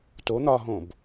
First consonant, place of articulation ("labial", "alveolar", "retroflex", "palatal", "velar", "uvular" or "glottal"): alveolar